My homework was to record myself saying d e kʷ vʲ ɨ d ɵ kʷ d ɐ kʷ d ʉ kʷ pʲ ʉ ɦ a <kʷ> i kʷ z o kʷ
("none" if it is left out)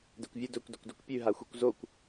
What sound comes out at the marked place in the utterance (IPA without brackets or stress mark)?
xʷ